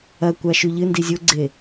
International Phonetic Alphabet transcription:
ɐ kʷ a ʃ ʉ ʎ ɨ n d i zʲ o ɡ͡ǀ e

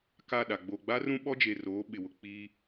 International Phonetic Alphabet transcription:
k a˦˨ ɗ a˨ ɡ͡b o˨ ɡ͡b a˦ r ũ˦ ɓ ɔ˦ d͡ʒ e˨ r oː˨˦ ɓ ɪ˨ w ʊ˨ k͡p iː˦

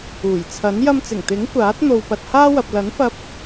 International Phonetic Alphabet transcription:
uː˨˩ j t͡sʰ ɐ˨˥ n j ɐ˧ m t͡s ɪ˨˩ ŋ t̪ ɪ˨˥ ŋ kʷ aː˨˥ t̚ n̪ o˧ w p ɐ˧ t̚ h aː˥ w ɐ˨ p̚ l ɐ˨˥ n f ɐ˧ p̚

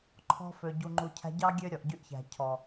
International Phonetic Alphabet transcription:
ǃʰ ɔ̤˧ f ø˨ ɟ u˨ ŋ͡ǃ u˨ cʰ æ̤˧ ɟ ɑ˦ ɡʲ ø˦ ɾʲ ɔ˨ ʔ ɟ y˧ ʔ ç æ̤˨ cʰ ɔ˨

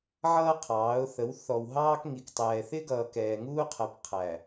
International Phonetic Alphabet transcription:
ʕ ʌː˦ qʰ ɑː˨˦ ʊ̯ θ ə˨˦ w θ ɔ˨ w ɦ ɑː˦ k ŋ i˨ k tˤ ɛː˨ θ ɪ˦ ɡ ʌː˨ k ɛː˨ ŋ uː˦ qʰ ɜ˨ p qʰ æ˨

